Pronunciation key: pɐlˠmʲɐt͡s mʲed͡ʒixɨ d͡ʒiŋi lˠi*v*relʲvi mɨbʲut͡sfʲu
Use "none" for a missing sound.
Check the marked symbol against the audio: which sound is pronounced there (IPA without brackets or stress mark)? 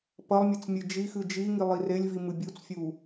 none